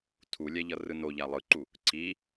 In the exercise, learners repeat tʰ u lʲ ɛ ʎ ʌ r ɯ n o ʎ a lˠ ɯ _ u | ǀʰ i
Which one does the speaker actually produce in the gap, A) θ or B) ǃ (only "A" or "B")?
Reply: B